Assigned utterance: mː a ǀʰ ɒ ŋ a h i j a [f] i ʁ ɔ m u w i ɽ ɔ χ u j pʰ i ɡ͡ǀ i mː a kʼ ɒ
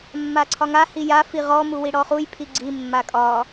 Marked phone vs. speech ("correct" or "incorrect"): correct